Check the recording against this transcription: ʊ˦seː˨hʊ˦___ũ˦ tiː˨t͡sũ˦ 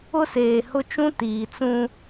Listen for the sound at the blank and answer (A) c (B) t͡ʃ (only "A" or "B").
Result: B